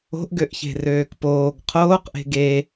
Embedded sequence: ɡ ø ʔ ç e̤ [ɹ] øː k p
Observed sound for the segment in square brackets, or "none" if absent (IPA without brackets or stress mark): r